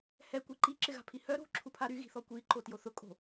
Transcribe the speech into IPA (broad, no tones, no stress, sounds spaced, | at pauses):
h ɛ kʷ i ǃ i ǁ ɪ ɣ a̤ pʰ i h œ ɾ o̤ ǁʰ u pʰ a ɾ y ɣ i̤ θ ɔ kʷ i ǃ o t j o θ ʊ kʼ o̤